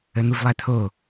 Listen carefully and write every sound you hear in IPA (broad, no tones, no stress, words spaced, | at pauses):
ən̪uvlˠæt̪ʰo